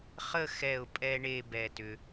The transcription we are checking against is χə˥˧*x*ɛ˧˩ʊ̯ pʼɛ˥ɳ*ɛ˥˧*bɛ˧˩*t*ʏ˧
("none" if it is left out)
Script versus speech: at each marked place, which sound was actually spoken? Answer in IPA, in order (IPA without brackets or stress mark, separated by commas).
x, e˥˧, t